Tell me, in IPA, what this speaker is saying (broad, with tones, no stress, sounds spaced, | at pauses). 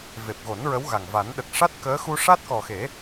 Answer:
v e˨˩ p̚ ɣ o˨˩˦ n ɹ ə˧˥ w ɣ a˨˩ ŋ v a˨˩˦ n ɗ ə˨˩ k̚ ʂ a˦˥ t̚ k əː˧˥ x u˧ ʂ a˦˥ t̚ k ɔ˨˩ x e˨˩˦